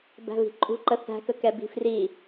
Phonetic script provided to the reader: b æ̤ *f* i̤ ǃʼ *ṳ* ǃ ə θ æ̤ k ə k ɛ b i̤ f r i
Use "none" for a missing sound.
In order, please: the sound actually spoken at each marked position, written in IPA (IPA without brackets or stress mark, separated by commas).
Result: v, ṳ